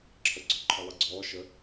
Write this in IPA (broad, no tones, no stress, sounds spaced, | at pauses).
ǁʰ ə ɡ͡ǀ ɔ ǃʰ ɘ lˠ i ɡ͡ǀ ɔː ʃ ə